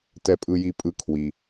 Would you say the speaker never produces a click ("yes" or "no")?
yes